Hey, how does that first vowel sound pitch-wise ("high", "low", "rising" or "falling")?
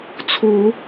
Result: rising